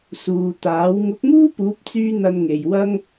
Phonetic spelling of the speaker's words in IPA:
s uː˨ t̪ aː˨˥ w ŋ ʊ˨˥ k̚ m uː˥ p uː˨˥ p̚ t͡s yː˧ n̪ ɐ˧ n ŋ e˨ j w ɐ˥ ŋ

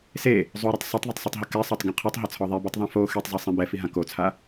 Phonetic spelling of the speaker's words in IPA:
s e | zˤ u ɾ ɯ tˤ sˤ i tˤ ðˤ ɯ tˤ sˤ i tˤ ɦ ɯ k ɛ sˤ ɤ tˤ ɡ ɛ̃ qʰ u tˤ ɦ ɤ t͡sʰ ɔ ðˤ e b u tˤ ðˤ ã f o x e tˤ zˤ ɯ sˤ ɛ̃ b ɛ f i ɦ ã k o t͡sʰ a

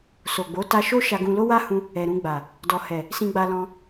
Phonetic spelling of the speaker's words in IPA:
s o˨ ɡ͡b o˨˦ t a˧ ʃ o˦ ʃ a˧ ɡ ũ˧ l o˦ w a˦ h ũ˧ | ɛ˨ ɾ ũ˧ ɡ͡b a˨ | d ɔ˨ h ɛ˨ | s ĩ˧ ɡ͡b a˧ l ɔ̃˧

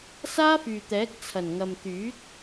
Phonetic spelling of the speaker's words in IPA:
s aː˥ f yː˨ t̪ ɛː˨˥ k̚ t͡sʰ ɐ˨˩ n ŋ ɐ˨ m t̪ yː˨˥ t̚

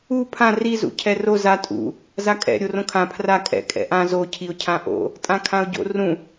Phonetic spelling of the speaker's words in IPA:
u pʰ ã r i z ṵ cʰ ɛ r o z a tʼ ṵ | z a kʼ ɛ̰ ɾʲ o r õ kʰ ã pʰ r a kʼ ɛ̰ kʼ ɛ̰ ʔ ã z o cʰ i ʊ̯ cʰ ã ʔ o̰ | tʼ ã kʰ ã ʊ̯ ɟ o̰ r ũ

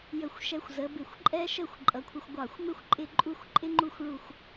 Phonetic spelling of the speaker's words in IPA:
j ə˧˩ xʷ ʃ ɛ˧ xʷ z ə˩˧ b ɪ˧˩ xʷ ǃʼ ɛ˥ ʃ ə˥˧ xʷ ǃʼ ʌ˩˧ kʷʰ ɪ˧ xʷ ɡʷ ɑ˧˩ xʷ m ɪ˥ xʷ ǃʼ ɪ˥˧ ǃʼ u˥˧ xʷ ǃʼ ɪ˥ ŋ͡ǃ u˥˧ xʷ ɭ u˧˩ xʷ

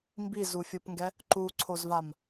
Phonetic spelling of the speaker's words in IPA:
m b i z u fʲ ɯ p ŋ ɡ ɛ | ǃ u ǀʰ o z v a m

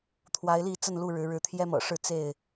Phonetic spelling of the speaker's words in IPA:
t̪ʰ w a˨˦ ɪ̯ l i˥˨ t͡s ə˥˨ n l u˥˨ ɻ ɻ̩˨˦ ɻ ɻ̩˨˦ t̪ʰ j ɛ˦ m ɤ̰˨˩ ʂ ɻ̩˥˨ t͡s e˥˨ ɪ̯

